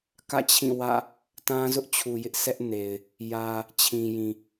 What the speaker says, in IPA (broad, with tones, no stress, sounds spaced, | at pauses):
k ä̰˦˨ t͡ɕʰ ĩ˦˨ w ä̰˦˨ | t ã˦ z ʊ˦ ʔ t͡ɕʰ u˨ j ɪ˦ ʔ s ɛ˦ ʔ n e˨ ɪ̯ | j ä˨ | t͡ɕʰ ĩ˨ j ĩ˨